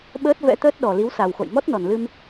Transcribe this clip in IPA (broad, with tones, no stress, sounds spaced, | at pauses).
ɓ əː˦˥ t̚ v ɛ̰˧˥ t̪ əː˦˥ t̚ ɗ ɔ˨˩ l i˨˦ w s a˨˩ w x o̰˧˨ j m ɔ˦˥ t̚ n ɔ˨˩ n l ɨ˧ m